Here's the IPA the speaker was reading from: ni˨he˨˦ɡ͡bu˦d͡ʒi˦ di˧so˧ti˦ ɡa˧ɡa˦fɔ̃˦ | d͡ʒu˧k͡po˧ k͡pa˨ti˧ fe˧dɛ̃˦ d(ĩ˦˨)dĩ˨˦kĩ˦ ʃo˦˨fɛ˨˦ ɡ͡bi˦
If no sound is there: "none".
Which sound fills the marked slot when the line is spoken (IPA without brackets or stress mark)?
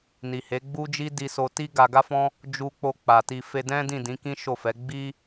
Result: ĩ˦˨